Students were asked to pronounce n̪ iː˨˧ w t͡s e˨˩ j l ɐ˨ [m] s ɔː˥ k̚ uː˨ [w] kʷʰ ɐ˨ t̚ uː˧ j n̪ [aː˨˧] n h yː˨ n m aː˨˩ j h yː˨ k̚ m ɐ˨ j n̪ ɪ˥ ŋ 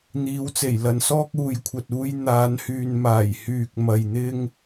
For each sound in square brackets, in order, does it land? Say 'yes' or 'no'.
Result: no, no, yes

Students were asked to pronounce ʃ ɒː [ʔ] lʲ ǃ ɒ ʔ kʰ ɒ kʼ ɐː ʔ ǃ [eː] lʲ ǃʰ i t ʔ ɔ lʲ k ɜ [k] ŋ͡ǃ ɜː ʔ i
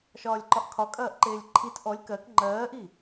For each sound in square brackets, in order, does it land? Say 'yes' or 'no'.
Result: no, yes, yes

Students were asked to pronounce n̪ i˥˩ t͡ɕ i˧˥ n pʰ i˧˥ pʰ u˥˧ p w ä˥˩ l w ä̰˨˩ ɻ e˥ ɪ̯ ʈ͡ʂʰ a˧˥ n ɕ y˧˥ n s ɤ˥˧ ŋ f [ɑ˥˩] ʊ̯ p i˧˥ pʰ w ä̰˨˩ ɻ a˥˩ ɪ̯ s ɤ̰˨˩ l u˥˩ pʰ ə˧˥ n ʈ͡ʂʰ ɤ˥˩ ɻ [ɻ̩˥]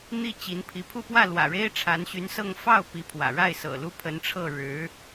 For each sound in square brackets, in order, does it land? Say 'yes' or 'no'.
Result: yes, no

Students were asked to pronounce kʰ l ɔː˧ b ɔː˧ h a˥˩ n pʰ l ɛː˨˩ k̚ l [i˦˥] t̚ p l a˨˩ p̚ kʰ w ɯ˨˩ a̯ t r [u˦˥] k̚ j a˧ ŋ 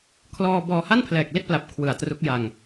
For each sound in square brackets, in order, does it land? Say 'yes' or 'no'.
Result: no, yes

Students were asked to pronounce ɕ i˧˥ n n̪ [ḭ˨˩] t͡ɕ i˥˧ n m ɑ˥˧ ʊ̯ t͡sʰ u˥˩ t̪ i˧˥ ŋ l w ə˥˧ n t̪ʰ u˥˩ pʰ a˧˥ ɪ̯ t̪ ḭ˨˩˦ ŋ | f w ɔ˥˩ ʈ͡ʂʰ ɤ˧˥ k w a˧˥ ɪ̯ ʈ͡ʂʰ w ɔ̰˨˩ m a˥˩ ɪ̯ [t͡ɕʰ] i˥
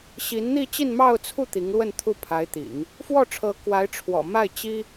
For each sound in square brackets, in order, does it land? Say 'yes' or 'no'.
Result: no, no

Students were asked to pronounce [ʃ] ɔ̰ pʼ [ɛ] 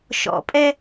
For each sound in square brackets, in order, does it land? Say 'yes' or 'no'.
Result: yes, yes

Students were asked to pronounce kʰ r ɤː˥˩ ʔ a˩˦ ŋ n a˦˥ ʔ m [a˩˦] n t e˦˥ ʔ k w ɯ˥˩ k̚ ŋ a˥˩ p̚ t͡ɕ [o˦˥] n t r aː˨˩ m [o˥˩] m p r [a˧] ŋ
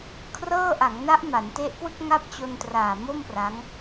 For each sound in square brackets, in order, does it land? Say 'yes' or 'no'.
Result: yes, no, yes, no

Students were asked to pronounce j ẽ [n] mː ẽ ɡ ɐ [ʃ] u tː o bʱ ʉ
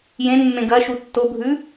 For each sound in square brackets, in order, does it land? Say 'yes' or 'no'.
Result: yes, yes

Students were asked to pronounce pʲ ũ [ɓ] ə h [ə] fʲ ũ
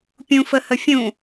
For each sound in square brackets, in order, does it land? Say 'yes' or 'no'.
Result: no, yes

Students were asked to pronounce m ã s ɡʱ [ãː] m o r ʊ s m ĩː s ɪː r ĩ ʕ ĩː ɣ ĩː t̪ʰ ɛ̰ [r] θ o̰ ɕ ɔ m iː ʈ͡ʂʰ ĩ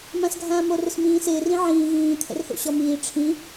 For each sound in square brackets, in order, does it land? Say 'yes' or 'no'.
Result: yes, yes

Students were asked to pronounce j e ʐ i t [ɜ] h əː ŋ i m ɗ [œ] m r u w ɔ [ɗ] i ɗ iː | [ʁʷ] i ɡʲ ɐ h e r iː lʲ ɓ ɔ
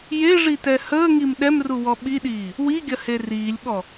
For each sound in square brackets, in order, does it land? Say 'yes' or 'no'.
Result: no, no, no, no

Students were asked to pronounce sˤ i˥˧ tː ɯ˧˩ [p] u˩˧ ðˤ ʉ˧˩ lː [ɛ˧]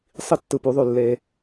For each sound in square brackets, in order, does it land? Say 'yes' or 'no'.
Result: yes, no

